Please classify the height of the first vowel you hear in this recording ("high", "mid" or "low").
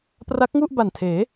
low